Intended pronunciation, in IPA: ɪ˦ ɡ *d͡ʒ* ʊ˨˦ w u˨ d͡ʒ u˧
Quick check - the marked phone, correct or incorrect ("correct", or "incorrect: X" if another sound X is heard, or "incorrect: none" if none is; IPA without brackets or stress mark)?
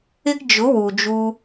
correct